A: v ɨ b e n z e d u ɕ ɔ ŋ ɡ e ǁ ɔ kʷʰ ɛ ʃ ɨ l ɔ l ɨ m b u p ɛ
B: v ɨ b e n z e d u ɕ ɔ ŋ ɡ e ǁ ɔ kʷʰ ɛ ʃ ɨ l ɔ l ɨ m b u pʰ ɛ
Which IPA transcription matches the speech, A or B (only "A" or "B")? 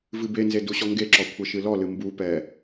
A